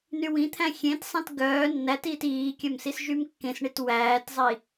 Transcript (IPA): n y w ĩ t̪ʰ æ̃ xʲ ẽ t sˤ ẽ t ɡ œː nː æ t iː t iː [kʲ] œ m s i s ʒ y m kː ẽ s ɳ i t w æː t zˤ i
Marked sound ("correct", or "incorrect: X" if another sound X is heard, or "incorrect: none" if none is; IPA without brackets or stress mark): correct